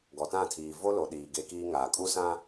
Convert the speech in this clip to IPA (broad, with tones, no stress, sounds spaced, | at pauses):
ɡ ɔ˨ t ã˦˨ tʰ iː˨ v o˦ l o˨ ɗ iː˨ ɡ e˦ k iː˦ ŋ aː˨ kʼ u˦ s ã˦